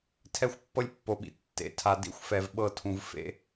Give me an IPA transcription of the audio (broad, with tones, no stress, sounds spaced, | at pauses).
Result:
tʰ ɛ˦˨ xʷ pː ɤ˦ lʲ pː o˨ ɓ ḭ˨ tː ḛ˨˦ tʰ a˨ d ḭ˦ xʷ f ɛ˨ v ɓ ɤ˦˨ tʰ ũ˨ v f ḛ˦